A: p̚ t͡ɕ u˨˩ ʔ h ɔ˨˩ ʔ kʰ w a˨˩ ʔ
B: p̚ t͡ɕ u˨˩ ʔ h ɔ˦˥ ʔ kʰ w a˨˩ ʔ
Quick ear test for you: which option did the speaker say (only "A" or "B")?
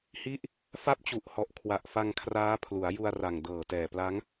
A